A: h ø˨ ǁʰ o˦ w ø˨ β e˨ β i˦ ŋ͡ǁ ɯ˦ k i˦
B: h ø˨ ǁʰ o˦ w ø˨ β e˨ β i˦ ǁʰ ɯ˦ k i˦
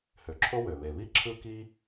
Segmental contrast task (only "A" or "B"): B